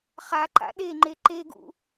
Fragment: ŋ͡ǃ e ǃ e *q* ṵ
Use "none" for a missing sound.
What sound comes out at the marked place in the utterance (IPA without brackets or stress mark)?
ɡ